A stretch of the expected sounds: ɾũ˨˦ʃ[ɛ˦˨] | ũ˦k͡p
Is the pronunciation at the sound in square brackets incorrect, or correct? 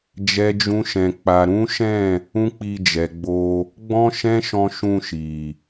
incorrect: ɛ̃˦˨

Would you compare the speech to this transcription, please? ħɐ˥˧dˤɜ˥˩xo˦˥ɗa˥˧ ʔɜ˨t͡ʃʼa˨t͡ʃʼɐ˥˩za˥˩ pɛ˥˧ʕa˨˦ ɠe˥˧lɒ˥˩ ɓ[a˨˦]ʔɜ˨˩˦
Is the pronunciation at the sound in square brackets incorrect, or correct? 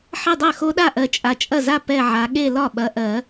incorrect: ɐ˨˦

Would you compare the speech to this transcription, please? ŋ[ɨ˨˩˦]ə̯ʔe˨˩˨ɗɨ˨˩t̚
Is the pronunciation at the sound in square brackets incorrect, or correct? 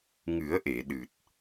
correct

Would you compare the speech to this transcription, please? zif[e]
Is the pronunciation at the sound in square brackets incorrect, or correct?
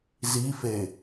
correct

